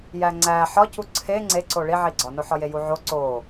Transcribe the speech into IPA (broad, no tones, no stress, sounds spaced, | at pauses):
j æ ŋ͡ǀ æ ħ ɒ c u ǀʰ e ŋ͡ǀ e ǀ o ɭ i ʕ i ɡ͡ǀ ɒ n o ħ ɒ j e j u ʕ o ǀ o